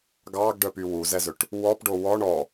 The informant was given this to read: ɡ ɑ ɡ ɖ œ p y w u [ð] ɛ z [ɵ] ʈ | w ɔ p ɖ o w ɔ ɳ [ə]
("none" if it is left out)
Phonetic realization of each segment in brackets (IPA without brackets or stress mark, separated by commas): z, ɵ, ɔ